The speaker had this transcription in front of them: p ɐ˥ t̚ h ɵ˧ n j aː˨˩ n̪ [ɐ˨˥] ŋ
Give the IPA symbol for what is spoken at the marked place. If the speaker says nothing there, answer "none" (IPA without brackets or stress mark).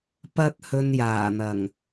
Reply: ɐ˨˩